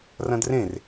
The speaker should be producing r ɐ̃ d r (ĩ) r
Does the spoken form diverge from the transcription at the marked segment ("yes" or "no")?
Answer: yes